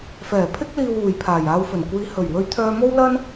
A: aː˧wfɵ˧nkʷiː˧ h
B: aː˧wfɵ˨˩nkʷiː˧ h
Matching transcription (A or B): B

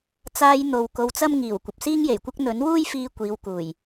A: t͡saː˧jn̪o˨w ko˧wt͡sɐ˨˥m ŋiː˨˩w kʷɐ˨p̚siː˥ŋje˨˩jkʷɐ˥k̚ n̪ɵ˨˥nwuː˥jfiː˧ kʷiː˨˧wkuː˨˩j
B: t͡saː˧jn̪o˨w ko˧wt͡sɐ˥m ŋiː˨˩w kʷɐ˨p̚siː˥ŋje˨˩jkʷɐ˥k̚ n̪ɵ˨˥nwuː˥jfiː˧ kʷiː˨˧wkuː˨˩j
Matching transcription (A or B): B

